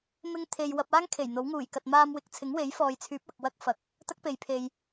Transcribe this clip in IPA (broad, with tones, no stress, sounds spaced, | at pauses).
m ɪ˥ ŋ t̪ʰ e˧ j w ɐ˧ p̚ aː˥ ŋ kʰ e˨˩ j n̪ o˨˥ w ŋ uː˨˩ j k ɐ˨ t̚ m aː˧ m w ɪ˨˥ k̚ t͡sʰ ɪ˨˥ ŋ w e˨˥ j f ɔː˨ j t͡sʰ yː˨˥ p̚ ɐ˨ k̚ w ɐ˥ k̚ f ɐ˨˥ k̚ | t̪ ɐ˥ k̚ p e˨ j pʰ e˨ j